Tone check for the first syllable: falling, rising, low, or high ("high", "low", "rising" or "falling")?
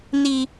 low